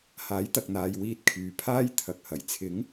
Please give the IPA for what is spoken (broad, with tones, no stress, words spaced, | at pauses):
haː˨˥jt̪ɐ˨k̚n̪aː˨j wiː˧t̚ kʰyː˨pʰaː˥j t̪ʰɐ˨k̚hɐ˨˩j t͡sʰɪ˨˥ŋ